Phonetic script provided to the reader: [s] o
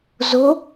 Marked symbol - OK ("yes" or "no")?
no